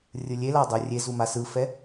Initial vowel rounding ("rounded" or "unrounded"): unrounded